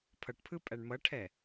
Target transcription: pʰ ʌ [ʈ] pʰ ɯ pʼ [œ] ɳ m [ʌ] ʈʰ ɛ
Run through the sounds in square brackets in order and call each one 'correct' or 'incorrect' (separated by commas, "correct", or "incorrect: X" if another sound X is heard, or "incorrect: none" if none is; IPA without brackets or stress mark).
correct, incorrect: æ, correct